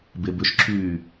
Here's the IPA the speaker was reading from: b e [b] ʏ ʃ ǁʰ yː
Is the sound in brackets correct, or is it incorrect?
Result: correct